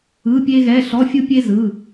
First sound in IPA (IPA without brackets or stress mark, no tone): ɯ